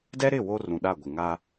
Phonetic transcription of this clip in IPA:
d ɛ˦ ɾ ɪ˦˨ w o˦ r ũ˨ ɗ a˦˨ ɡʷ ɪ˨ ŋ a˦

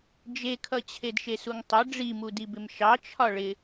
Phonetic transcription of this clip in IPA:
d͡ʒ e kʰ ʌ t͡ɕʰ e d ʃ e s u ŋ tˤ ʌ ɖ͡ʐ i m u d i b ɪ m ʃ ɑ t͡ʃʰ ɒ ɭ ɪ

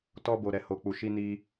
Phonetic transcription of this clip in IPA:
t ɔ˧ b o˨ ɾ ɛ˨ h o˨ k͡p u˨ ʃ i˧ n i˧

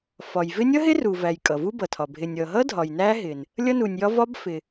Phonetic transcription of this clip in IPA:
f ɒ˩ j v ɪ˦˥ nʲ ʌ˦˥ ɦ ɪ˦˥ r u˩ v æ˩ j kʼ ʌ˩ v u˦˥ b ʌ˩ tʰ ɒ˩ bʱ ɪ˩ nʲ ʌ˩ ɦ ʌ˦˥ dʱ ɒ˩ j n æ˦˥ ɦ ɪ˩ n | lʲ ʌ˦˥ n u˩ nʲ j ɒ˦˥ v ɒ˦˥ b f ɪ˩

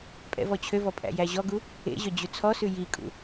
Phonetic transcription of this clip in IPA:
pʼ ɛ̰ v ɔ t͡ɕʰ ø v ɔ pʼ æ̰ j æ ʑ ɔ ɡ u | ḛ ʑ œ d͡ʑ ʉ t͡sʰ ɔ s ʉ j i kʼ ṵ

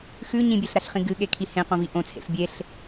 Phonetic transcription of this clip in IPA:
x ʉ ɲ ĩ bʲ e ɬ ɾ a ɬ χ ĩ ɡ ɨ ɠ e kʰ i h ẽ q õ v i ʔ õ t͡sʰ ḛ ɬ bʲ e ɬ

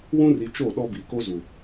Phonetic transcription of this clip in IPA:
w ũ˦ r i˨ t͡ʃ o˦˨ ɗ ɔ˦ b i˨ k o˦ z u˨

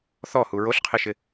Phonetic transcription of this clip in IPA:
θ ɔ h u ɹ o ɬ qʰ e ʃ ɪ

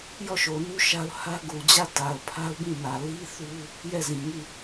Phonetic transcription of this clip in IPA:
j ɔ˦˨ ʃ o˨ n u˦ ʃ a˦ ʊ̯ h ä˦ ɡ u˨ d͡ʑ ä˦˨ t a˨ ʊ̯ pʰ a˦ ʊ̯ b ĩ˦˨ n ä˨ l i˦ θ u˦ | j ɛ˦˨ z ĩ˨ ŋ i˦˨

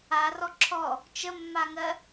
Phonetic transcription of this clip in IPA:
a r ɔ ǁʰ ɔ | t͡ʃ ə mː a ŋ ɜ

